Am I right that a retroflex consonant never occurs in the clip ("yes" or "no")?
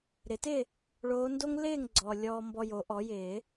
no